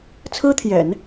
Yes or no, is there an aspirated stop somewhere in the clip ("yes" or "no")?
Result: yes